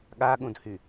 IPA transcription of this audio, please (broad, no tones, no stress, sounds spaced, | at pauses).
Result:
ɠ a ɠ ũ d h y